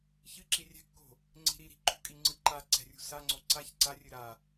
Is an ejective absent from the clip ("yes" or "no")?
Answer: no